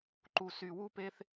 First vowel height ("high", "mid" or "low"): high